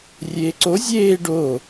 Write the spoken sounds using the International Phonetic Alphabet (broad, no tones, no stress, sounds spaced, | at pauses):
rʲ eː ǀ o zʲ eː ɖ oː